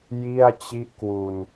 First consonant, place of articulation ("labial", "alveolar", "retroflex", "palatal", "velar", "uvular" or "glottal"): palatal